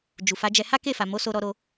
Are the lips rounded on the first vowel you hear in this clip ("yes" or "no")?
yes